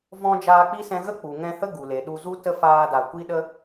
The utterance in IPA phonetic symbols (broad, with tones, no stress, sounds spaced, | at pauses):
v ɔ̃˧ d͡ʒ aː˧ k͡p i˦ s ɛ̃˧ ɣ ə˦ k͡p u˨ ŋ ɛ̃˧ h ə˦ ɡ u˨ l e˨ ɗ u˧ z u˦ t ə˦ f aː˧ d a˨ kʷ i˦ ɗ ə˦